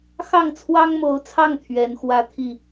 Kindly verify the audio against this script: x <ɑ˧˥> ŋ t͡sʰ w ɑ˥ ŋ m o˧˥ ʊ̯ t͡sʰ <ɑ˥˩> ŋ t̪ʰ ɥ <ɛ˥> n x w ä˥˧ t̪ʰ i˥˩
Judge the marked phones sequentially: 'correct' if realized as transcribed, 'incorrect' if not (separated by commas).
incorrect, correct, incorrect